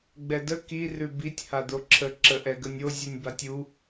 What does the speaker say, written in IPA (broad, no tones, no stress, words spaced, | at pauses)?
ɡ͡bɛdə ki rʉbitʲ had̪oǁʰə ǁəʔɛɡənʲo zʲunʲbatʲu